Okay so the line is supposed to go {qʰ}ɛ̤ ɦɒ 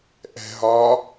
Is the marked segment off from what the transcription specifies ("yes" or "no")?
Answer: yes